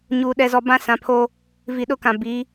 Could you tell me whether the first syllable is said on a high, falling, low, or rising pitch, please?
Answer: low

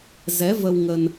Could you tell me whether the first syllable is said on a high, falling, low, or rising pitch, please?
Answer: rising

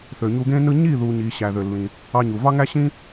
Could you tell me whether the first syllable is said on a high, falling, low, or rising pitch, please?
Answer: low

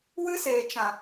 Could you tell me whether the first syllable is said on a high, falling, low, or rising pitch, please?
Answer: high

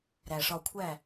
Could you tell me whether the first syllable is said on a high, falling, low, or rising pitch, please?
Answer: low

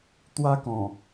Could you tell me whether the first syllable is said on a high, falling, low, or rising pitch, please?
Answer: high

